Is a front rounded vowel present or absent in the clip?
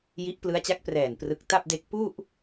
absent